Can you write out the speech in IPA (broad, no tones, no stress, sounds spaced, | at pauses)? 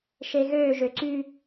ʃ e ɣ ø ʒ ø ǀ y